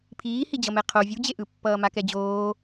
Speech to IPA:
pʰiːhid͡ʑʌ mɛqʰo vʲud͡ʑeʔɯpːʌː makɛd͡ʑoː

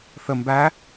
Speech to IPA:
θə mbæ

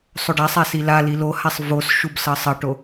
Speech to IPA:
sˤoɖasˤa silali lohasˤ vos ʃubsʌsˤʌʈo

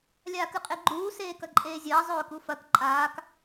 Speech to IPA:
lʲaːkɨqʼeɡ͡ǃuː seːkɐǃʼeːzʲɐː zˤɵːkufɐk ǃʼaːk

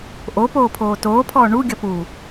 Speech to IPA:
ʔopoːpʰoː toːpʰɔː ɳu ɡʲʌpu

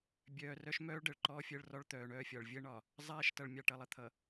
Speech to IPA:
bʲœː˨rœ˦ʃ mœː˦ɭ ɖəː˨ɭǃɔː˦fʲəː˦ɭrɔ˦ɭ t̪œː˨ɳœː˦fʲɒ˨ɭ vʲəː˦ɳɒ˨ | zˤɛː˦ʃtʌ˨ɭmʲɑ˨ ʈʌ˨lˠə˨t̪ʰʌ˨

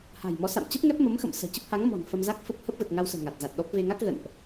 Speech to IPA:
ha̤˨˩jmɔ˨˦ sa̰˧˨m t͡ɕə˦˥p̚ŋɛ˦˥p̚mə˨˦mxə̰˧˨m sə̤ː˨˩t͡ɕə˦˥p̚ ha˨˦ŋ mɔ̤˨˩n fə˧mza˦˥k̚fə˦˥p̚ hə˦˥p̚və˨˩t̚ŋa˧wsə̤ː˨˩ ŋa˨˩t̚za˨˩t̚ɗɔ˦˥p̚ ve˧ŋa˦˥k̚ ɣə̰˧˨nʔ

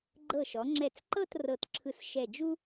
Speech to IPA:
ɡ͡ǃɤ˧˩ʃɔ˩˧ŋ͡ǁɛ˧˩t͡sǃɤ˥˧t rɤ˧˩tǁʰɯ˧sʃɛ˧˩d͡ʒu˥

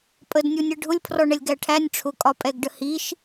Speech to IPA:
pʼədnʲunʲɜ ɖʱʊlʲpʰrɔɳɛlʲ ɡæʈʰænʲ ʈ͡ʂʰʊkʼɒpʼɛɡɖə hiʃ

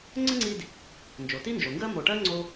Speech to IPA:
ŋ͡ǀə˥ŋ͡ǀi˦d | nd͡ʒo˩ti˦nd͡ʒo˩ ŋɡɜ˥ mo˨ʈɜ˥ŋ͡ǀo˦

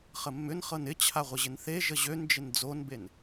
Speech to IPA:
χəmːʏn χɤnɪ t͡ɕʰaʁʷɪʑɪnθe ʒəʑønd͡ʒɪn d͡zonben

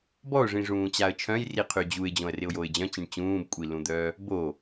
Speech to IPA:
bɔʊ̯ʐĩʐũːt͡ɕaə̯ t͡ʃʰœ̃jriqʰy d͡ʑuɪ̯d͡ʑõə̯rɪʊ̯joɪ̯ d͡ʑœ̃t͡ɕĩɳ t͡ɕũːbkʷʼilũd̪œː | bo

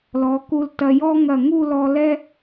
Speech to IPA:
lɔ˩˧ku˧ltɐ˧ jɔ˥ ŋɐ˧˩ŋu˥˧lɔ˧ lɛ˥

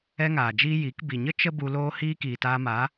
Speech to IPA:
ɛ˦ŋaː˨d͡ʒiː˦ ji˨˦k bi˨ɲə˦ t͡ʃə˦bu˧ loː˦ hiː˦kiː˨taː˧ma˨˦

